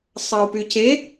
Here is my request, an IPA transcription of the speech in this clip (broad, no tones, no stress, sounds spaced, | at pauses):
sˤ ɑ u̯ p y c e